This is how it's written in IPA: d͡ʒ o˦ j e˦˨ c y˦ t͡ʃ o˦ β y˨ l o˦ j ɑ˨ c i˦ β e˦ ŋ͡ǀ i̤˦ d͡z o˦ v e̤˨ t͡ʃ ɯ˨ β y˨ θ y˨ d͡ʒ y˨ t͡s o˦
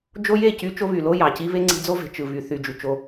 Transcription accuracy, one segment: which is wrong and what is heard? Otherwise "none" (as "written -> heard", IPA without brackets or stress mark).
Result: t͡s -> t͡ʃ